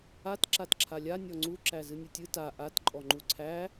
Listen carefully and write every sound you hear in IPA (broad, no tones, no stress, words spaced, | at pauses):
at ǁatǁʰalʲa nʲɔŋ͡ǀu ǁæzɨnʲɨtʲɨ ta ʔat ǃʼɔŋ͡ǃuǀʰæ